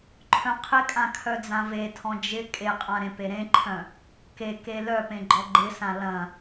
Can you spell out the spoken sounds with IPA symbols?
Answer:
ǃʰœ̃qʰɪkʼã kʰœd͡zãvetʰɔ̃ d͡ʒɪ kʼeqʼã ɾẽpeɾẽǃʰœ̃ | keke lœpẽ ɡ͡ǃɔɡ͡ǃɪsã lɐ̃

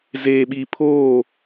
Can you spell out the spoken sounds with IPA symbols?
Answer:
zeː˨ɓi˨ pʰoː˦˨

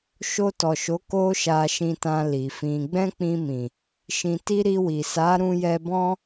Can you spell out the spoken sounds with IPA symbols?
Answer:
ʃo˧tɔ˨ʃo˨˦ ko˦ʃa˧ʃĩ˧tã˧ li˨fĩ˧ ɡ͡bɛ̃˦k͡pĩ˧mĩ˨ | ʃĩ˨ti˧ ɾi˧wi˨ sa˨˦ ɾũ˦jɛ˦ bɔ̃˦

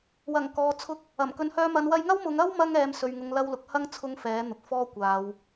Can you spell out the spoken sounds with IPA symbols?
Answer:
wɐ˨˩ŋkɔː˨t͡sʰʊ˧k̚ | ɐ˨˩m kɵ˨˧nhœː˧mɐ˨˧n wɐ˧jŋɐ˥wmʊ˨˧ŋ ɐ˥wmɐ˧ŋɛː˨m sɵ˧ɥŋʊ˧ŋlɐ˥wlʊ˧k̚ hɐ˥ŋ t͡sʰʊ˥ŋfɛː˨˥n̪ʊ˨k̚fɔː˥ kʷaː˨˧w

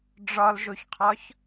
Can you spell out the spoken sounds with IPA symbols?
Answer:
ɖ͡ʐɒlʒoçqʰɒç

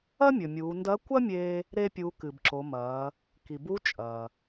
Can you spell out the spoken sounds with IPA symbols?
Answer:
ɐ˥mʲɵ˩ mʲuː˩˧ndɐ˧˥ kʷɐ˥mʲeː˧ | ɾe˧pʲu˩˧ kɨ˩bǁo˩˧mɐː˩˧ | ki˩bu˧˥ t͡ʃʼɐː˩

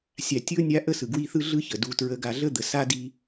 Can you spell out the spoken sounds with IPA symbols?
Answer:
sʲa˨tʲɯ˥ʊ̯nʲa˦ ʔə˥sɯ˩ ɡwi˦θɯ˥ ɮɯ˦ çə˩du˨ tɹə˨ ɡa˨ɮə˥d̪ə˩ sa˥di˦

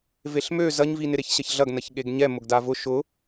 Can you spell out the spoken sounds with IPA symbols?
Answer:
veɬmø zɐɲvi nɪɾeçɕɐçɮɐɡ nɐçɠeɡɲɛ mʊɡdavʊ ʃʊ

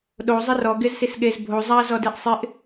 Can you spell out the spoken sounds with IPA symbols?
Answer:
ɗo zˤɪrɔ ɡɪz sisɠez bʱo zˤa zɔdeʔsˤɪʔ

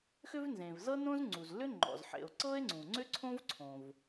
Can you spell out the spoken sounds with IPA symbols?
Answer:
xʏ˥vnzẽ˩v zɤ˥nõ˥z ŋ͡ǀu˩zlʏ˥ ŋ͡ǃɔ̰˩zħḛ˩o̯ ǀɤ˥e̯ŋ͡ǀũ˩ŋ͡ǀʏ˥ ǀʰõ˥vǀʰõ˩v

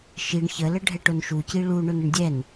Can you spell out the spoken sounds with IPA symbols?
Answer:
ʃiɳ çələ ɖʱɛʈʊnʃuci ɭu ɳʊnəɳdʲɛn

